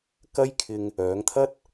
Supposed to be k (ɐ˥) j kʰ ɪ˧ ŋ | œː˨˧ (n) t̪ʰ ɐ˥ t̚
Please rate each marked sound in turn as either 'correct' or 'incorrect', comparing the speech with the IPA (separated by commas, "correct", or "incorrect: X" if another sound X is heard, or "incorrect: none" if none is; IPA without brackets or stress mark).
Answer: correct, incorrect: ŋ